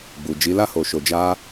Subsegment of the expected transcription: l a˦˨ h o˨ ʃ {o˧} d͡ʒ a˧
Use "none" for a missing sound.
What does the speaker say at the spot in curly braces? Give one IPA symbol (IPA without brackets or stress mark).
o˨